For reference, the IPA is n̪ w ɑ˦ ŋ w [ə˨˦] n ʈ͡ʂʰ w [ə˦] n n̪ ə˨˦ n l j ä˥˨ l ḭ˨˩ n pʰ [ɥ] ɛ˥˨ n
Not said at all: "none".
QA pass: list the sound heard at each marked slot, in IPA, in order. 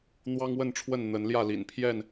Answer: ə˥˨, ə˥˨, j

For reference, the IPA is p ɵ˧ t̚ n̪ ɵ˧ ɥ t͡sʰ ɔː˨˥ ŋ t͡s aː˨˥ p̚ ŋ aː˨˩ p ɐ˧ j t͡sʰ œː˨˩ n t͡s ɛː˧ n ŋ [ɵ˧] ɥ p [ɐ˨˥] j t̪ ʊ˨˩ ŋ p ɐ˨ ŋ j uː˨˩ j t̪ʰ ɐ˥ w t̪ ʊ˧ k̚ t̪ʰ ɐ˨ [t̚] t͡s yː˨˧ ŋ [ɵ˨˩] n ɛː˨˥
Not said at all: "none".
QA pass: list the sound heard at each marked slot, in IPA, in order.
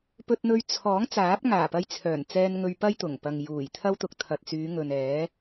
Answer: ɵ˧, ɐ˥, t̚, ɵ˨

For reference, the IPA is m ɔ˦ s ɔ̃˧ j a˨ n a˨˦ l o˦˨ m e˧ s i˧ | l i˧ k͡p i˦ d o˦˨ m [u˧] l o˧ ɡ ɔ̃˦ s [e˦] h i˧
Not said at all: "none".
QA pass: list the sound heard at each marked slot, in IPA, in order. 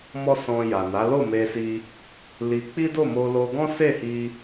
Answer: o˧, e˦˨

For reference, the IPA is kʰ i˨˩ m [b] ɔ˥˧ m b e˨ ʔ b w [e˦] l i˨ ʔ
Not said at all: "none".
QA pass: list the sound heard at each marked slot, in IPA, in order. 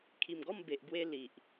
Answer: ɡ, e˧

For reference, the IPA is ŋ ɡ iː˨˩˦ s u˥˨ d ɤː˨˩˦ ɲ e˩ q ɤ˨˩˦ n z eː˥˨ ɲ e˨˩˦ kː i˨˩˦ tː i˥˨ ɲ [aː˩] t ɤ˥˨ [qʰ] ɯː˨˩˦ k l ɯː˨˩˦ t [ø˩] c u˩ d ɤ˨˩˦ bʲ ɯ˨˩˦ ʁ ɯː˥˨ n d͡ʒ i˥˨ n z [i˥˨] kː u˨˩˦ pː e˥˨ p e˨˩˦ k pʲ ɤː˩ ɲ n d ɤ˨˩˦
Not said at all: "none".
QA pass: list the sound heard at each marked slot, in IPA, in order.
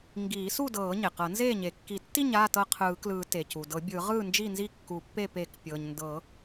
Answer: aː˥˨, qʰ, e˩, i˥˨

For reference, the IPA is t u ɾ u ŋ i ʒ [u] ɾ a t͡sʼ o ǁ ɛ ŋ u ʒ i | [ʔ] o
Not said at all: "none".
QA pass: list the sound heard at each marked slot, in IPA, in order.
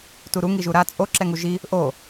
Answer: u, ʔ

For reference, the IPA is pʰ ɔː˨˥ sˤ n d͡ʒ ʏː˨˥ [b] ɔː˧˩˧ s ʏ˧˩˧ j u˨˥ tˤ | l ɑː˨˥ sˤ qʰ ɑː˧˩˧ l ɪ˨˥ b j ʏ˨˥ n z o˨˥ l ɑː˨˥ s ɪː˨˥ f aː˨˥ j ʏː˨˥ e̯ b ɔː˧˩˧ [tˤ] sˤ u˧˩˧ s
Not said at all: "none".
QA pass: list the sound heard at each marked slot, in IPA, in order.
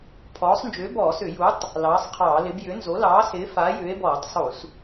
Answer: b, tˤ

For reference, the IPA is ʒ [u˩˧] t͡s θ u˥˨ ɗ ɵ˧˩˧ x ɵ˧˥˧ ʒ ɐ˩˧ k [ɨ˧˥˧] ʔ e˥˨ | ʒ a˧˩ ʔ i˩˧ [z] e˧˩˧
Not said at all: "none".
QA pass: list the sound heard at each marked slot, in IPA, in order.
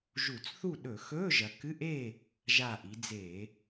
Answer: u˧˩˧, ɨ˧˥˧, d͡z

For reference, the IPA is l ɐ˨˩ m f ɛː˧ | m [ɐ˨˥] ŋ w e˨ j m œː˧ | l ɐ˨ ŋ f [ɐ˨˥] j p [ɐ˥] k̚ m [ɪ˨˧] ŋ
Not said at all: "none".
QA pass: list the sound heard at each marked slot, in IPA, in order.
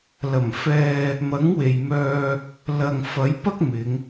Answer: ɐ˨˥, ɐ˨˥, ɐ˥, ɪ˨˧

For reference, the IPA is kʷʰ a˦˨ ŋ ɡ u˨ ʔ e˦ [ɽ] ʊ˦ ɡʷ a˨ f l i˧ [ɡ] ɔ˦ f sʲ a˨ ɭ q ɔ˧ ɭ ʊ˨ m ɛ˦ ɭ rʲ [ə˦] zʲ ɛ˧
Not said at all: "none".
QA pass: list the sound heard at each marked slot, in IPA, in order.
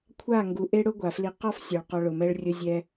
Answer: ɽ, q, ʊ˦

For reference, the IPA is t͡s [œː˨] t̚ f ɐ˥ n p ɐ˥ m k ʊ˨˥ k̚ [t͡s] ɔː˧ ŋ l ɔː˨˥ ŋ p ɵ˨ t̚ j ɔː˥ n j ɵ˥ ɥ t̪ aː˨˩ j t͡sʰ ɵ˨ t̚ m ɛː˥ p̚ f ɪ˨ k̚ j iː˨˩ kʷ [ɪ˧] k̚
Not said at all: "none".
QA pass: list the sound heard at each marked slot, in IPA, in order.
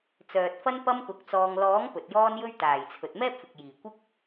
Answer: œː˨, t͡s, ɪ˥

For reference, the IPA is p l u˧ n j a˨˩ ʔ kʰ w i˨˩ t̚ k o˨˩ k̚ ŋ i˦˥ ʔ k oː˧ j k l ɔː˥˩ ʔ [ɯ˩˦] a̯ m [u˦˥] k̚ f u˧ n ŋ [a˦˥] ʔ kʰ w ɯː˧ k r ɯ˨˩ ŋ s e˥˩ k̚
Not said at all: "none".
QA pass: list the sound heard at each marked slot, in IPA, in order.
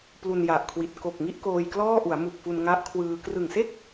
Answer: u˩˦, u˨˩, a˦˥

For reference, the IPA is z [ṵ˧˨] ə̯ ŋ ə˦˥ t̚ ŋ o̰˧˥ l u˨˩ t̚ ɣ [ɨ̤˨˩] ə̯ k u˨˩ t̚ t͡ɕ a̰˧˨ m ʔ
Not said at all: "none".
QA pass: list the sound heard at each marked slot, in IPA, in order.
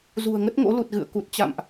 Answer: ṳ˨˩, ɨ̰˧˨

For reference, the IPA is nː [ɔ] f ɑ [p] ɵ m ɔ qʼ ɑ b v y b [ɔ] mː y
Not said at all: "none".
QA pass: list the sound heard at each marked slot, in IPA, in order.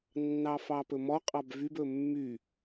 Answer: ɑ, p, ɵ

